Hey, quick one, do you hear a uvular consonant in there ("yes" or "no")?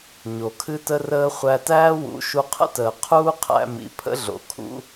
yes